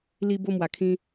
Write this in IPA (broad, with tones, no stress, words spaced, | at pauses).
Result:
li˧ bo˥˧mwa˨˩kʰĩ˦